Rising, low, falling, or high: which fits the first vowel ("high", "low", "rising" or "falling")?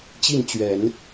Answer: falling